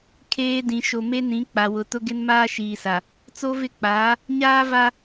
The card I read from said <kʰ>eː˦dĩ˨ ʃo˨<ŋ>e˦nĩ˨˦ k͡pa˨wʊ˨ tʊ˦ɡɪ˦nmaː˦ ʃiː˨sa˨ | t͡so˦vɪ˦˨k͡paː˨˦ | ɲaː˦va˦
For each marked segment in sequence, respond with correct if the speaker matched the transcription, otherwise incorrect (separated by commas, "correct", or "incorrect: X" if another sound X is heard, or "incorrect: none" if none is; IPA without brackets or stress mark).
correct, incorrect: m